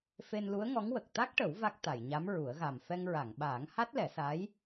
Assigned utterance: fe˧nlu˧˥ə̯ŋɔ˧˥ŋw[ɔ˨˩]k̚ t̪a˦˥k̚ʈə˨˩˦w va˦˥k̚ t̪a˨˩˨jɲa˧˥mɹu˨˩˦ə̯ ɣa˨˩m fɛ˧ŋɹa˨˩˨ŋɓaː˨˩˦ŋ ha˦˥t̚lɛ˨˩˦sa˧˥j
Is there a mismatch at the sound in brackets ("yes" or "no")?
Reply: yes